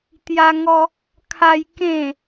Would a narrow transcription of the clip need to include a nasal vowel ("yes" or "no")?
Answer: yes